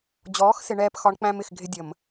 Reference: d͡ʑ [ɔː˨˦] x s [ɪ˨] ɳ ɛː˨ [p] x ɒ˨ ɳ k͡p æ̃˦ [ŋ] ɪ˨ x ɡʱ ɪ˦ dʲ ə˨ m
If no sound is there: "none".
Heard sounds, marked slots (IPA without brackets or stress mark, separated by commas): ɔː˨˦, ɪ˨, p, m